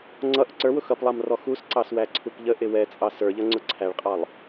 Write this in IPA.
ŋ͡ǀ ʌ ʔ ʊ ǀ ə˞ w ʊ x ʌ p lˠ ɑ m r ɔ x u s ǀ ɑ s w æ ǀʰ u p ʎ ə ʔ ɪ w ɛ t͡sʼ ɑ s ə˞ ʎ ʌ ŋ͡ǀ ʊ ǀʰ æ ɭ qʼ ɑ lˠ

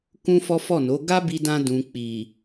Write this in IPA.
k ũ˦ f ɔ˦ f ɔ˦˨ n o˨˦ ɡ a˦ b i˧ d ã˧ d ũ˨ k͡p i˨

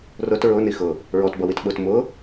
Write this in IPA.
r ʊ t ɹ ʊ n i x ʊ | ɹ ɔ t b ʌ w i t ɓ ʊ t m ʊ

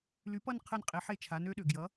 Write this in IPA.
l y˩˥ p ʌ˦˨ n qʰ ɘ˦˨ n qʼ e˩˥ ħ e˦˨ t͡ʃʰ a˩˥ n ø˧˥ ɗ ø˩ ɡ j ʌ˩˥

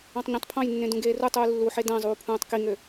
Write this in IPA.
ɑ̃ tˤ ɲ ẽ tˤ pʰ ɑ̃ j nː ẽ d ũ ɡ eː r u tˤ uː lː u ħ e d æ̃ zˤ uː pʰ ũː tˤ k i ŋ ø

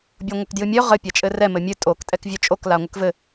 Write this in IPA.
bʲ o ŋʷ ɘ k d j ɨ mʲ œ ʁ ɘ pʲ a t͡ʃʼ ɘ r ɛ m ɘ mʲ ɨ tʼ o k tʼ ɛ k vʲ œ t͡ʃʼ o k l a ŋʷ ɘ k v ɘ

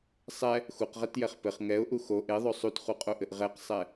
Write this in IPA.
sˤ ɛ | x u q ʁ ɛ t j ɛ χ p ɘ χ ŋ ɛ ʊ̯ ʔ u x o ʔ e ðˤ o sˤ u t χ u qʼ o ʔ ɘ ʔ ʁ ɛ q sˤ ɛ

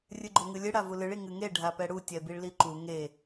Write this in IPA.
rʲ ɨ ɡ͡ǃ o ŋ ɨ lʲ ɨ ɽ a v u l ɨ ɭ i ŋ ɨ ŋ e ɖʱ a p ɛ ɽ u tʲ ɛ b i ɭ l i ǃ u ŋ e

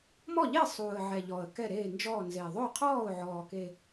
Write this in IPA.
m ɔ˥˩ ʎ e˥˩ sˤ uː˨˩ ə̯ ʕ ɛ˨˩ ʎ ɔ˨˩ ə̯ k ɛ˥˩ ɾ eː˥˩ n d͡ʒ ɔː˥˩ n z e˨˩ ðˤ o˥˩ qʰ ɔː˥˩ ʊ̯ ʕ ɔː˨˩ k e˨˩

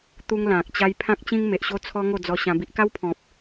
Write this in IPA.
t̪ u˦ ŋ l ã˨ k̚ t͡ɕ a˦ j pʰ ã˦ k̚ t͡ɕ ĩ˦ ŋ m e˨ ʔ ɕ o˦ t͡sʰ ɔ˦ ŋ o˥˧ d͡z ɔ˧ ɕ ã˧ b i˦ ʔ k a˦ w pʰ ɔ̃˨ p̚

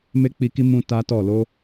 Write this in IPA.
m e˦ k͡p i˧ k i˦ m ũ˦ t a˦ t ɔ˦˨ l o˧

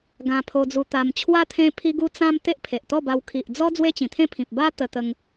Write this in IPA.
ɡ ã˧ pʰ o˧ d͡z u˧ t̪ a˧ m t͡ɕʰ w a˦ t̪ʰ ẽ˦ pʰ i˦ ɡ u˦ t͡s ã˦ m t̪ e˦ ʔ pʰ e˨ ʔ t̪ ɔ˥˧ b a˧ w kʰ i˨ ʔ d͡z ɔ˦ d͡z w e˦ t͡ɕ ĩ˨˩ t̪ʰ ẽ˥˧ pʰ ĩ˨ p̚ b a˦ t̪ ə˧ t̪ ə˧ ŋ

